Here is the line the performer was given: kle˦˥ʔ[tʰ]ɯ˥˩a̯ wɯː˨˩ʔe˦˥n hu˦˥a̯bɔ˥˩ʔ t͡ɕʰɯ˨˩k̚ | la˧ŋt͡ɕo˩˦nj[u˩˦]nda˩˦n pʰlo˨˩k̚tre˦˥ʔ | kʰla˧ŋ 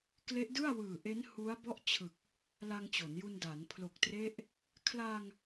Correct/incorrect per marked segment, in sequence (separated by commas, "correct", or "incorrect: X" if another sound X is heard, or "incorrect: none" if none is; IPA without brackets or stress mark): incorrect: d, incorrect: u˧